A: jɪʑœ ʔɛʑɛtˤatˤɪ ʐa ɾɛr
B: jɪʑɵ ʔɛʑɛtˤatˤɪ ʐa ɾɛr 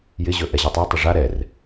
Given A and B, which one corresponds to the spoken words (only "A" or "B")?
B